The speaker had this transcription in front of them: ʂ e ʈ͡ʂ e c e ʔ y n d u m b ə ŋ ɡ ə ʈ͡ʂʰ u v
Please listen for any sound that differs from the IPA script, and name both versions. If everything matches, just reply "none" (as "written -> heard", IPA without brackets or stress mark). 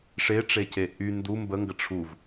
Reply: none